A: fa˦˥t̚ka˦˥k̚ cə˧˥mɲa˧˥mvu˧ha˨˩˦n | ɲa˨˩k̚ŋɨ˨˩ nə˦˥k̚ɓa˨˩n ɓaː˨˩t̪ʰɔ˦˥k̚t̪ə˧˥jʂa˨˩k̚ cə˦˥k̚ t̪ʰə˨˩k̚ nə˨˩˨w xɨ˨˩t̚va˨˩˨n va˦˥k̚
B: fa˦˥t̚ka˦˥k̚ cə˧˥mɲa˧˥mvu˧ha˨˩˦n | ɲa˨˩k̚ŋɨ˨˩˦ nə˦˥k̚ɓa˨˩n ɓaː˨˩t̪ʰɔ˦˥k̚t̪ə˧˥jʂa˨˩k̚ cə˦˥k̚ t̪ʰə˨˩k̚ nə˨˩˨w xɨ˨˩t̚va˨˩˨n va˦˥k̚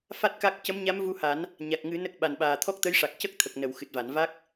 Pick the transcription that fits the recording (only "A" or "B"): B